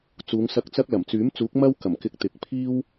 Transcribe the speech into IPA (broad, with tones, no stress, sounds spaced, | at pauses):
t͡s uː˨˧ ŋ s ɐ˧ k̚ t͡s ɐ˥ k̚ l ɐ˨˩ m t͡s yː˨˥ m t͡s uː˨˥ k̚ m ɐ˥ w k ɐ˨˩ m k ɪ˧ k̚ t̪ ɪ˨˥ k̚ pʰ iː˥ w